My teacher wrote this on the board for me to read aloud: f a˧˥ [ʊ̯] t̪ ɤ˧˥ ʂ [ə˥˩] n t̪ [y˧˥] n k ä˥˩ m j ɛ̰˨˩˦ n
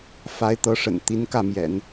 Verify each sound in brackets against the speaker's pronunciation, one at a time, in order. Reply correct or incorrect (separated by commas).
incorrect, incorrect, incorrect